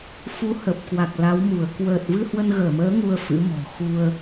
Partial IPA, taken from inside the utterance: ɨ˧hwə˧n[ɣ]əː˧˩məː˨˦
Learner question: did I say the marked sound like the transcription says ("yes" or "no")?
yes